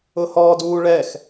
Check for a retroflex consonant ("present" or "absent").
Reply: present